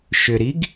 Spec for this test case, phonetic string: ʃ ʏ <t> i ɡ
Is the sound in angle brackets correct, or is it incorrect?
incorrect: ɾ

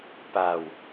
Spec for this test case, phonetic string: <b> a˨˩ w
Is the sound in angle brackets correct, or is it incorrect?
incorrect: p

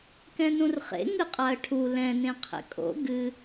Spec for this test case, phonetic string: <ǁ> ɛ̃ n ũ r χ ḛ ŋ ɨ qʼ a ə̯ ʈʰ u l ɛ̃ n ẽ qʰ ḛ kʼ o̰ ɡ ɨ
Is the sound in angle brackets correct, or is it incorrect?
incorrect: k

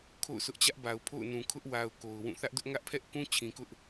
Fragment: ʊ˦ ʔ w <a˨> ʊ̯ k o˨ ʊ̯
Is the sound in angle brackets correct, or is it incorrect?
correct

